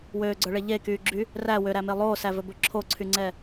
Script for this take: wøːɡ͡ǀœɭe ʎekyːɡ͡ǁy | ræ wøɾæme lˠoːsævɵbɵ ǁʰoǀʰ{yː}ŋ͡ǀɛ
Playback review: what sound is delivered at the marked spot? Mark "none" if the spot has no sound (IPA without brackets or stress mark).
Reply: y